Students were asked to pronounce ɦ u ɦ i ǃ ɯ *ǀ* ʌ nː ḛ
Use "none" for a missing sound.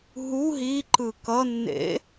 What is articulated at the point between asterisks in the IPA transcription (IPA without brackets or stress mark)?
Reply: k